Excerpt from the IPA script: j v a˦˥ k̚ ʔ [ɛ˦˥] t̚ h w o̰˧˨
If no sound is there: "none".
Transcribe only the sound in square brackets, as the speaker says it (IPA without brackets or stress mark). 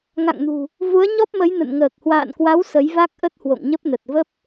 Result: ə˦˥